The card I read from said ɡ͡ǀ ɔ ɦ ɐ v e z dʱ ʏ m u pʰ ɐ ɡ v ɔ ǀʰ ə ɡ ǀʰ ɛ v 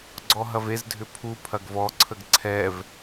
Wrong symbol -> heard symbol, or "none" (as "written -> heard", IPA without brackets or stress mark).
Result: m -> pʰ